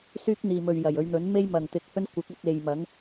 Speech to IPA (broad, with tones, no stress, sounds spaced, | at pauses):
s yː˥ k̚ n̪ iː˨ m ɵ˨ ɥ j ɐ˨˩ j ɵ˨˧ ɥ n̪ ɵ˨˥ n m e˥ j m ɐ˨ ŋ t̪ ɪ˧ k̚ h ɵ˥ n kʷ ɪ˨˥ k̚ ɵ˧ t̚ e˨ j m ɐ˨˥ ŋ